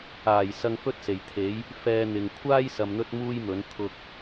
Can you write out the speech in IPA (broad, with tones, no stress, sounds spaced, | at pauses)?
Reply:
aː˨˩ j s ɐ˧ ŋ f ɵ˥ t̚ s e˨˩ j t̪ʰ e˨˥ j | f ɛː˧ n̪ ɪ˨ ŋ kʷʰ aː˥ j s ɐ˧ m n̪ ɵ˥ t̚ m uː˥ j m ɵ˨˥ n t̪ʰ ʊ˧ k̚